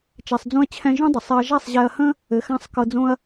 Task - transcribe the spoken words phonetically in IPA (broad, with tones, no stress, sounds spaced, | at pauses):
t͡ʃ ɛ˨ sˤ d͡z ũ˧ ɐ̯ t͡ɕʰ ɛ̃˧ ʒ ũ˦ dˤ ə˨ sˤ ɛ˧ ɐ̯ ʒ a˦˨ sˤ ʑ ɛ˧ ɐ̯ h ə̃˦ | ɘ˨ x ã˧ sˤ k ɤ˧ d͡z õ˦ ɐ̯